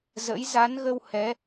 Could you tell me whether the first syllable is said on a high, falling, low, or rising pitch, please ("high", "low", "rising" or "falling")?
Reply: rising